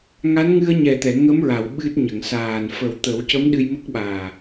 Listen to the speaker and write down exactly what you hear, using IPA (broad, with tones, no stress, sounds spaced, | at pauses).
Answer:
ŋ a˧˥ n ŋ ɨ˧ ə̯ ɲ ɛ˨˩ t̪ ɛ˨˩˨ ŋ ə˧˥ m ɹ a˨˩˨ w ɓ ɨ˦˥ t̚ ɲ ə˨˩˨ ŋ s aː˨˩ n f ə˨˩˦ w t̪ ə˨˩˦ w c ə˧˥ m ɗ ɨ˧ j m ə˦˥ k̚ ɓ aː˨˩